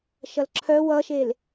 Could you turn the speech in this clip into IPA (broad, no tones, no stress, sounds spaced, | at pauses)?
ʃ ʌ l ǁʰ œ w ʌ ʃ e l